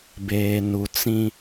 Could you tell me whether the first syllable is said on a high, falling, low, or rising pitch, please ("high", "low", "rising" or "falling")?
low